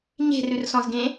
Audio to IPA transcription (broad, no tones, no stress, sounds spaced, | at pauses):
ɲ e̤ r ʉ r s ɔ̃ z ɡ ẽ